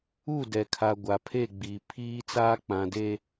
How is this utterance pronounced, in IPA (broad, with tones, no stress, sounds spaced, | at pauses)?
u˦˨ d ɛ˨ kʰ a˨ ɡʷ a˨ pʰ e˦˨ ɡ͡b iː˨ pʰ iː˦ t͡s aː˦ k͡p ã˨ d e˦